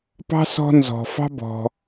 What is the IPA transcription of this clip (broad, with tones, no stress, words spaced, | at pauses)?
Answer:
pɑ̤˥ sɔ̤˦nzɔ̤˩ fɑ̤˦bɔ̤˩